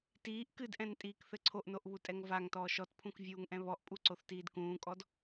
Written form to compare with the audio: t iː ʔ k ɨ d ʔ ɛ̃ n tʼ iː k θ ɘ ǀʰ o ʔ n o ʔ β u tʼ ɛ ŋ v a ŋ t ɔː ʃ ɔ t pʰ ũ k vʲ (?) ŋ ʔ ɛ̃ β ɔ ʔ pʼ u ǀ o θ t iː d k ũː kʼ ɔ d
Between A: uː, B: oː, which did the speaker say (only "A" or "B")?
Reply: A